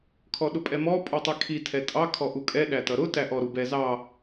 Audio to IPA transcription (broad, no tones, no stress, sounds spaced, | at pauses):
kʰ ɔ ɗ ʊ pʼ ɛ m ɔ pʼ u tˤ i kʰ i tʰ ɛ tʼ ɑ kʰ ɔ ʔ u kʼ ɛ ɗ æ t ʌ ɾ ʊ t æ ʔ ɔ ɾ u b ɛ z ɑ